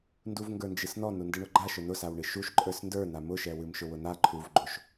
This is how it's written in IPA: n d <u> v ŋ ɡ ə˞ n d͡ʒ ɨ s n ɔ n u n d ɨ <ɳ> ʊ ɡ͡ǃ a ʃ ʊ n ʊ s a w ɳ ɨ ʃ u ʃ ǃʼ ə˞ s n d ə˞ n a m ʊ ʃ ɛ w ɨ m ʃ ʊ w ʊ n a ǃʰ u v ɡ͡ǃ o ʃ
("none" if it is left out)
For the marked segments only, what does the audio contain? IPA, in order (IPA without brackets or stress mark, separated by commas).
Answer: u, ɳ